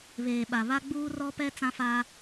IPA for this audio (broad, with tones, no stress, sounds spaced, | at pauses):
β eː˨ ɓ a˨ β a˦ ɡ͡b uː˦ r ɔ˦ p ɛ˦ t͡s ã˦ f aː˦